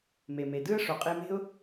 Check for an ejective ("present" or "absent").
present